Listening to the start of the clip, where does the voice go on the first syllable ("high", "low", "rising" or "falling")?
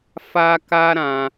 high